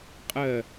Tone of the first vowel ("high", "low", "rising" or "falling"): falling